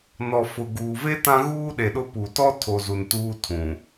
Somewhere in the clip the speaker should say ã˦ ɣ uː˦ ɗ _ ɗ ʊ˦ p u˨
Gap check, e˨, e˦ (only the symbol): e˨